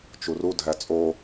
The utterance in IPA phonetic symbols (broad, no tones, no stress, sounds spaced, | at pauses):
t͡ʃ u r u dʱ æ t͡sʼ o